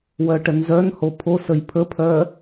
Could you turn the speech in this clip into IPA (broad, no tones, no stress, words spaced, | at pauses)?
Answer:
wœʈənzœnho pʰo səjpʰəpʰœ